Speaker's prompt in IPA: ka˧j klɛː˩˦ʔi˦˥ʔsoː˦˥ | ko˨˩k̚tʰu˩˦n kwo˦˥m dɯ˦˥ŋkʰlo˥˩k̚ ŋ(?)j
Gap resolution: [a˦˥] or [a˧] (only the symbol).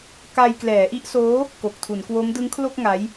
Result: a˦˥